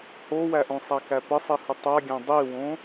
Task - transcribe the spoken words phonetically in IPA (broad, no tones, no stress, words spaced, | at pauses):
howæʔõsˤæ kæpəsˤihə tˤaɡʲã dˤiwõ